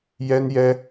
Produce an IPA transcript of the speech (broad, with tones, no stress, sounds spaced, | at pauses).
j ɛ˥ n j ɛ˥